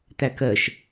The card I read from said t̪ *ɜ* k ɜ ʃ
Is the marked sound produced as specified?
no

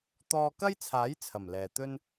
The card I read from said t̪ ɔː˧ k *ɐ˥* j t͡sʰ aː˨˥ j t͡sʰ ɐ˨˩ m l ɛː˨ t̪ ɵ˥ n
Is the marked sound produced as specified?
yes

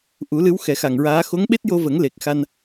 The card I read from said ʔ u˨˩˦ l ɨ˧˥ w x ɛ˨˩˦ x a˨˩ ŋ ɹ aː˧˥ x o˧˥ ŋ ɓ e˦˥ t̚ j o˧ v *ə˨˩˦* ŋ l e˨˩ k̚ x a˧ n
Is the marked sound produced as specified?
yes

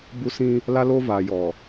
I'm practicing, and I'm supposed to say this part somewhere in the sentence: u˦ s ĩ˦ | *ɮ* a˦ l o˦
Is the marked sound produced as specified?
no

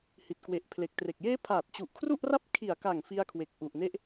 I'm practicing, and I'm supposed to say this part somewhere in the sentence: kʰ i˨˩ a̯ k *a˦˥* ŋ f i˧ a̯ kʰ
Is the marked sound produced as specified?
no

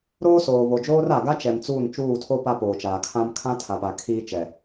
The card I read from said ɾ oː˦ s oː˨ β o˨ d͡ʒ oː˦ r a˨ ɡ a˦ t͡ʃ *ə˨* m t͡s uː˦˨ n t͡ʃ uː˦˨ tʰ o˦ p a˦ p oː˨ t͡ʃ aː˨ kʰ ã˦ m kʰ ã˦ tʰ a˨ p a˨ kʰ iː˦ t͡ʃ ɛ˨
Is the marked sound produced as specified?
no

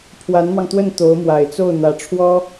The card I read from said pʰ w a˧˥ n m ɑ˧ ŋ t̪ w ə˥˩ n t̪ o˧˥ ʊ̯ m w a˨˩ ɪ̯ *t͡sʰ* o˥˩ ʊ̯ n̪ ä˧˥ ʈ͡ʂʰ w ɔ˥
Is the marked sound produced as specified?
no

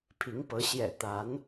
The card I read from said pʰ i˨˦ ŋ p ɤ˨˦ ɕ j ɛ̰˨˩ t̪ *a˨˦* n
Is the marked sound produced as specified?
yes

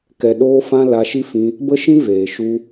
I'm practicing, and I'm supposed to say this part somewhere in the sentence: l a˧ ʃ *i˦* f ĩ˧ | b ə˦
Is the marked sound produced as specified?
yes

